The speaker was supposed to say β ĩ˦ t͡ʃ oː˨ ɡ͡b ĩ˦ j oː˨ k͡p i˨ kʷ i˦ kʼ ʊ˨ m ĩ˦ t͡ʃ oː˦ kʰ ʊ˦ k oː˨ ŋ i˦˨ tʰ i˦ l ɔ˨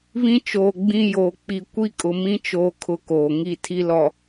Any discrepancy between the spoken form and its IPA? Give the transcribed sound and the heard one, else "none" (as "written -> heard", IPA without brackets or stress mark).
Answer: none